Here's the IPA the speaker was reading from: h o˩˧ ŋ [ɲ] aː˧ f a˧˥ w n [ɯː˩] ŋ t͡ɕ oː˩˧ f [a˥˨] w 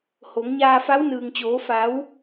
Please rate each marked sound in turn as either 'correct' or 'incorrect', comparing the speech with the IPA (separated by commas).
correct, correct, incorrect